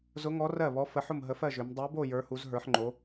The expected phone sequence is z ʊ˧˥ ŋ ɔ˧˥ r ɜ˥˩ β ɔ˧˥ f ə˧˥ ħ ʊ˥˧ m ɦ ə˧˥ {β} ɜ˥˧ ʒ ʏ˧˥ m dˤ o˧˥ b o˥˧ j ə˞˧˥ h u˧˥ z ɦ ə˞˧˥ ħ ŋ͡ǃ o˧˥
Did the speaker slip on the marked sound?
yes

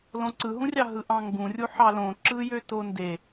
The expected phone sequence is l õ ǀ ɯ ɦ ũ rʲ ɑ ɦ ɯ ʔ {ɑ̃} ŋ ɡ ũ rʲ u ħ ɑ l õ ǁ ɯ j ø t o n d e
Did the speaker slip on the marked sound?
no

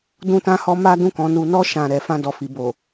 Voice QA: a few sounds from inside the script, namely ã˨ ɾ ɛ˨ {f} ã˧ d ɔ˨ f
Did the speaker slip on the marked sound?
no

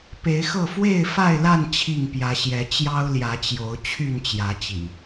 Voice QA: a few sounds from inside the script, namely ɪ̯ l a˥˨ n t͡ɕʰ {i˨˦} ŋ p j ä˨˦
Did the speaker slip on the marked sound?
yes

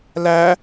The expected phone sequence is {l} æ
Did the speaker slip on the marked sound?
no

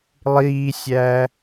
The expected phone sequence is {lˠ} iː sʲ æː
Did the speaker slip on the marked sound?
no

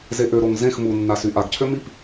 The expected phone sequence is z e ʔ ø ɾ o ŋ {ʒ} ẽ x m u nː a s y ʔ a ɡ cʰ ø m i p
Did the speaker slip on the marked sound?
yes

